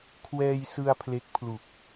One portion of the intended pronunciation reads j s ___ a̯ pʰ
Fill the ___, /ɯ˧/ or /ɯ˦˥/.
ɯ˧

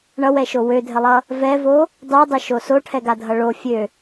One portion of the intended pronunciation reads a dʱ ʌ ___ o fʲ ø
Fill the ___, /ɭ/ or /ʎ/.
ɭ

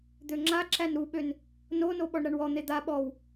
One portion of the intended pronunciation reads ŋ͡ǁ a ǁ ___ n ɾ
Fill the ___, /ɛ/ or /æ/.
æ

